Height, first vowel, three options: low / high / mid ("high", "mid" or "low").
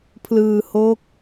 high